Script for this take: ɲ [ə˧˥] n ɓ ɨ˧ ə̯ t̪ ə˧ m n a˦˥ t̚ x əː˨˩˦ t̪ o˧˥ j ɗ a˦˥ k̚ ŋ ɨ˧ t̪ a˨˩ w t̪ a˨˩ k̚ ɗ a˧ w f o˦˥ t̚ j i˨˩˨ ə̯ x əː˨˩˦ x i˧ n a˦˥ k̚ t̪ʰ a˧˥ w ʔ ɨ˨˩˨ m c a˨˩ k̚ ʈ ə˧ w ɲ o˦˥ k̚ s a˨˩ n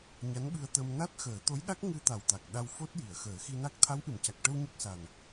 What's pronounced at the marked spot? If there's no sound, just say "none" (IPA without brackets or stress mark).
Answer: a˧˥